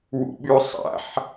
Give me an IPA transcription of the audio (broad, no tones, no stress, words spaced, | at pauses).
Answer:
wṵɓʉsˤa̰ħ